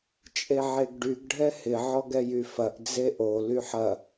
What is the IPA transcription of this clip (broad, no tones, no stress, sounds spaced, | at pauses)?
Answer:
t͡ʃʼ e ʕ e ɡ ɖ y ɡ ɖʱ ɛ h ɪ ʕ ɔ ɡ ɛ j y f ɐ ʔ d͡z e ʔ o l y ħ ɐ